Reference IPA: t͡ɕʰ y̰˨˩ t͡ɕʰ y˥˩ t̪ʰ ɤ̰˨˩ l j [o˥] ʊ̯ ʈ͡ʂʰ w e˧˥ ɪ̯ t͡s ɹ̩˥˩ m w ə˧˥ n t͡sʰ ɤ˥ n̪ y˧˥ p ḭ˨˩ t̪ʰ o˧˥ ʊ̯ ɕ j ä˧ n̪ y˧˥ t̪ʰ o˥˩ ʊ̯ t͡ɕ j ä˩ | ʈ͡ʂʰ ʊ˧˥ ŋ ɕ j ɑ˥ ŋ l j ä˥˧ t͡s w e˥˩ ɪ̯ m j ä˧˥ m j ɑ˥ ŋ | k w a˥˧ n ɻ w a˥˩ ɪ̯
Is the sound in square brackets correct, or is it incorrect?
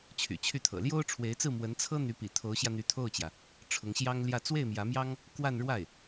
correct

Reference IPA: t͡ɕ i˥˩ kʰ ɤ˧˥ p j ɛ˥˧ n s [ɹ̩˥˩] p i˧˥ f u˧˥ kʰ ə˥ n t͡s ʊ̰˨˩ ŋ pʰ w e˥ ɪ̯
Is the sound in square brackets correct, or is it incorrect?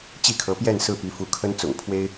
correct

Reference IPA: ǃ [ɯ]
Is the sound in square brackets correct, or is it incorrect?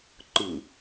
correct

